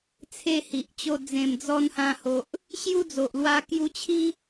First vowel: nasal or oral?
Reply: oral